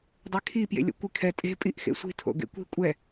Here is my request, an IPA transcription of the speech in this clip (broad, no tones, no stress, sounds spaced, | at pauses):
dˤ e kʰ i p j ḛ lʲ o̰ kʷ i kʰ ɛ tʼ e̤ pʼ i ʔ x ḛ sʷ i̤ tʰ o̰ ɡ ḛ kʷ i̤ kʷʼ ɛ